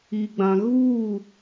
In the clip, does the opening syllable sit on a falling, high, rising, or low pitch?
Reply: low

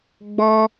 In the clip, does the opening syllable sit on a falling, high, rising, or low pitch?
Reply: high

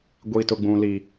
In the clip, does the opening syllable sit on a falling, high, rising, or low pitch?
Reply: high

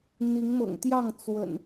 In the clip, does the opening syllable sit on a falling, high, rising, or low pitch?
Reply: rising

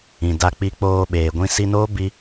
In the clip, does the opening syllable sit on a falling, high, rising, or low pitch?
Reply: low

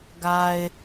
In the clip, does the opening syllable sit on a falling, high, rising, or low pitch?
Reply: low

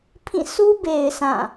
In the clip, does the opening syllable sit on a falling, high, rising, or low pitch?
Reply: falling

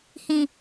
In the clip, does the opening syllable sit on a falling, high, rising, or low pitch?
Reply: low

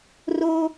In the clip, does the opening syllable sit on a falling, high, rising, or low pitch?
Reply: high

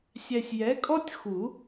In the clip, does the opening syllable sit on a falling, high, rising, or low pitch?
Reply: low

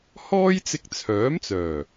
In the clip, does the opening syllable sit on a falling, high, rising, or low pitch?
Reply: high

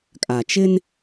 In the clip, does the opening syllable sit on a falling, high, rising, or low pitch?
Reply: low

